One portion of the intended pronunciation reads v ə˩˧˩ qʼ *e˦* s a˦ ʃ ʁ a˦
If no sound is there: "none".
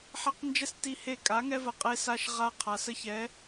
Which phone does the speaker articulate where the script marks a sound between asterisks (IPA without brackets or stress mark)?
e˦